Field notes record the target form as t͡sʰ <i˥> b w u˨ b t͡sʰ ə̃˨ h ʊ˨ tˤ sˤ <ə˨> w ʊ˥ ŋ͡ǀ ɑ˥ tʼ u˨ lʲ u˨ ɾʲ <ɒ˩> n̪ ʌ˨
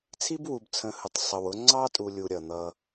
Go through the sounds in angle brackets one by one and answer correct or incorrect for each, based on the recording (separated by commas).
correct, correct, incorrect